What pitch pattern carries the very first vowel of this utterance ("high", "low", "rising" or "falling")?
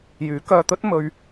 rising